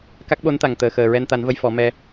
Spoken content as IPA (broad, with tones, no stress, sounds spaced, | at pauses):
k a˦˥ k̚ ɓ o˧˥ n t̪ a˨˩ ŋ t̪ əː˨˩ x əː˨˩ ɹ ɛ˧ n t̪ a˨˩˦ n v ə˧ j f ɔ˨˩˦ m ɛ˧